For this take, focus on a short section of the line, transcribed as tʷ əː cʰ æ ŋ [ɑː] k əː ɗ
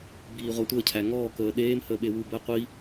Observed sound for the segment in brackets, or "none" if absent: ɔː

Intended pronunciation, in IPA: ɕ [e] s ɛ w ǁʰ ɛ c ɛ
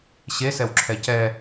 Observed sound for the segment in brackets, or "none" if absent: e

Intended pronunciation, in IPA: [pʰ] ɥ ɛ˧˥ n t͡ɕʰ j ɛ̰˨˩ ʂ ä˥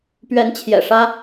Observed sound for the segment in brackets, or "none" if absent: p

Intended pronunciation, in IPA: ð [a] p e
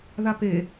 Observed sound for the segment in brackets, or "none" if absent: a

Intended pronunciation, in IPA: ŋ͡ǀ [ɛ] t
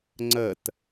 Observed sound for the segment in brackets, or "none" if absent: ə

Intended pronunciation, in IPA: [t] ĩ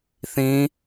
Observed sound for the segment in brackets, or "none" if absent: θ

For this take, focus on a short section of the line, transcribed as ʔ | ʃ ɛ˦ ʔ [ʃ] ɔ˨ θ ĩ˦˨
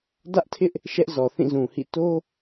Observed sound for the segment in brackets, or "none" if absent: z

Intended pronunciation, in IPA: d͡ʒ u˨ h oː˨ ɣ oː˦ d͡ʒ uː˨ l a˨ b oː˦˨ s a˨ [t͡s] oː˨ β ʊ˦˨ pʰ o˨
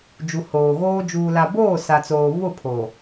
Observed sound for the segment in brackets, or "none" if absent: t͡s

